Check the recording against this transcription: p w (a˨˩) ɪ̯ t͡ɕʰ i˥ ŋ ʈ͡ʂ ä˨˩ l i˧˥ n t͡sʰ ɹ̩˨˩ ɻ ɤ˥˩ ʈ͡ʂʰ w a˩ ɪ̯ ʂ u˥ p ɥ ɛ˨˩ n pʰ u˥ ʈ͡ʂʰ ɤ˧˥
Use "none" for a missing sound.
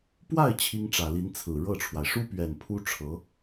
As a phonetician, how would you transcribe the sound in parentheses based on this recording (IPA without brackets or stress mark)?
a˥˩